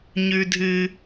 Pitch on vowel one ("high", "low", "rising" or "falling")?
high